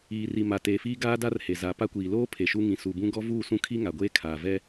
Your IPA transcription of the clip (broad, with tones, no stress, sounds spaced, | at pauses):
iː˨ r i˨ m a˨ t eː˨ f iː˦ ɡ aː˦ d a˦ r h e˨ z a˨ p a˦ kʷ iː˨ l oː˦ pʰ e˨ ʃ u˦ ŋ ĩ˨ s u˨ b ũ˦ ɡ ɔ˦ v uː˦˨ s ũ˦ kʰ i˦ ŋ a˨ ɡʷ eː˦ kʰ aː˨ v ɛ˦